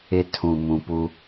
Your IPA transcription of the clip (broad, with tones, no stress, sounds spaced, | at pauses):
ɪ˦ tʰ ũ˨ m ũ˨ p u˦